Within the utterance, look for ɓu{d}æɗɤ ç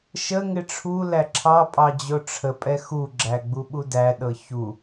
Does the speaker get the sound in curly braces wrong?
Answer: no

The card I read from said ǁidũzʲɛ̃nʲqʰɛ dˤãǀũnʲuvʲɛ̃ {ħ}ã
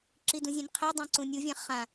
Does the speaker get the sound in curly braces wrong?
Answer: yes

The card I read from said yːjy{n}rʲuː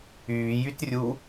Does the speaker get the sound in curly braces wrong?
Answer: yes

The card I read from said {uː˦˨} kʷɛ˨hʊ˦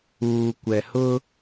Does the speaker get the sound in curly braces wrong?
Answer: yes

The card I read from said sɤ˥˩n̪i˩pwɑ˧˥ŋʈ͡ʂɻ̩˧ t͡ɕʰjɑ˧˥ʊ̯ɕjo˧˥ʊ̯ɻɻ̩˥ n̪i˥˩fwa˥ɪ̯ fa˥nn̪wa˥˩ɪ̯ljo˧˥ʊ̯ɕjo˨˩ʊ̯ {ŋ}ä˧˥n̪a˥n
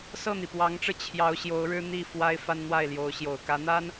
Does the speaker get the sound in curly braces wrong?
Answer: yes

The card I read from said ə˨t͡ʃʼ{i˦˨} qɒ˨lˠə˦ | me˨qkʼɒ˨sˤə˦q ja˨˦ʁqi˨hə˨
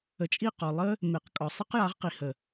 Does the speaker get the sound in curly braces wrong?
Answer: no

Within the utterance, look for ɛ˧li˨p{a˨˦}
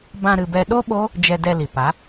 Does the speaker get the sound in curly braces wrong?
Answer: no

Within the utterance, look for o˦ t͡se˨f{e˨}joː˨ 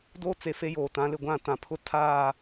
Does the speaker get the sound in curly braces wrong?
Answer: yes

